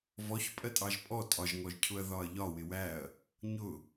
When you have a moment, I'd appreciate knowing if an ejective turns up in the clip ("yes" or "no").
yes